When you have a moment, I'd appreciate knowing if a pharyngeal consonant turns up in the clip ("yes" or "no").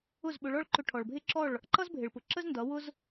no